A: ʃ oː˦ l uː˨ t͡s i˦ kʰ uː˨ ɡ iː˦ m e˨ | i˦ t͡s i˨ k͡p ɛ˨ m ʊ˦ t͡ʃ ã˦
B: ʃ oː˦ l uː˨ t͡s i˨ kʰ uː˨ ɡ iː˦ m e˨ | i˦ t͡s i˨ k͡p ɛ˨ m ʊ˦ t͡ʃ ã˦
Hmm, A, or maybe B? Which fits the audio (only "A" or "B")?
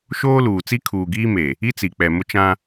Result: A